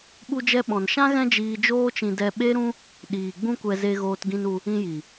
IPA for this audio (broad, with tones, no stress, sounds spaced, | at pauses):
ɓ u˧ d͡ʒ ɛ˧ ɓ ɔ̃˨ n ʃ ã˦ ɣ ɛ̃˦ d͡ʒ iː˧ d͡ʒ oː˦ t͡ʃ ĩ˧ d ɛ˧ ɓ e˦ ɾ ũ˦ | ɗ iː˨ ɡ͡b ũ˦ kʷ ɛ˧ z e˧ ɣ oː˧ t ɡ ĩ˧ n u˧ | ĩ˧ j i˨